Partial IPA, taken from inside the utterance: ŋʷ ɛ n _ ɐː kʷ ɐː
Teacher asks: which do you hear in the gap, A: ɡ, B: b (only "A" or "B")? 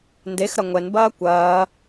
B